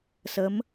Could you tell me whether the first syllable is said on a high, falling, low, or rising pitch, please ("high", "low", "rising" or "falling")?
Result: rising